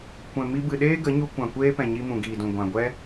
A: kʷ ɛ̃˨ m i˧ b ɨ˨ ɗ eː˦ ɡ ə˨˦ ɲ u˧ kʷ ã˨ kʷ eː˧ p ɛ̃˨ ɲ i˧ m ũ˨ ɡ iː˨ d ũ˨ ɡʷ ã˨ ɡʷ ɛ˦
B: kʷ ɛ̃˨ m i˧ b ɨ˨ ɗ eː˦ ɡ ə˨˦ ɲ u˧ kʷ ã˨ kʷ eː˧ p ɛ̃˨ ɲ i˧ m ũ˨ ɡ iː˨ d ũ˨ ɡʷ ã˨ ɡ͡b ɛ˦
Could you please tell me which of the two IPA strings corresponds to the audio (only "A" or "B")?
A